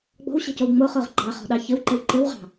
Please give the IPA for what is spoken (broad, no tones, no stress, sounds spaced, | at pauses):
ɡ͡b ɔ̤ w ɕ ɛ̤ c o w ŋ͡m o χ o ʁ ɡ͡ǃ ɑ χ ɔ̤ ɗ ɑ ç ɘ w ǃ ɘ w ǃ ɘ w ʁ ɑ̤